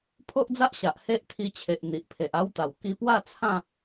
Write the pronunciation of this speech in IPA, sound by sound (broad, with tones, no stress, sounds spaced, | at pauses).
pʰ o˦ ʔ d͡z a˦ ʔ ɕ a˨ ʔ h e˦ ʔ t̪ʰ i˧ t͡ɕʰ e˨ ʔ n̪ i˨ ʔ pʰ e˨ ʔ a˦ w t̪ a˨˩ w k i˧ p w a˥˧ t͡sʰ ã˥˧